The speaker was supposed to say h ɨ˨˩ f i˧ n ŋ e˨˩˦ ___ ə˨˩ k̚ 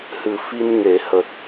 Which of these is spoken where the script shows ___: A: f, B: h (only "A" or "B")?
B